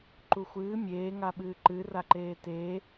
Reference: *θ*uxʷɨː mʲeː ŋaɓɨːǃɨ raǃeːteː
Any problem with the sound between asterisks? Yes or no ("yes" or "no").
yes